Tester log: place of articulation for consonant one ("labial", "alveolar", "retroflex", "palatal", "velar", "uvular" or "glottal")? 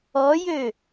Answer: palatal